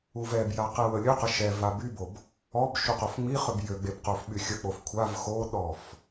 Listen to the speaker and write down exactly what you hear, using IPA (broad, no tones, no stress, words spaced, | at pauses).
uvɛbja qɛwəlʲøqə ʃɛva bybob | ɔb ʃuqofŋ͡miχøb jøɡ͡beb qofɓyxʲək͡pof kʷʰav xoɗɔf